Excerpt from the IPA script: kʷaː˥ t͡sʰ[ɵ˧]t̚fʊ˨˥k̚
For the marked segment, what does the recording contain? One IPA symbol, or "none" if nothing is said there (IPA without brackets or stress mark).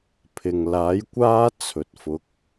ɵ˨